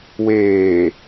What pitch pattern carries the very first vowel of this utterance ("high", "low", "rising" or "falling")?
low